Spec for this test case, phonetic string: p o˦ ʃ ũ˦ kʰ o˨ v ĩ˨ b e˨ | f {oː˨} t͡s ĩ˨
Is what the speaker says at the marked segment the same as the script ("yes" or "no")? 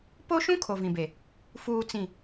no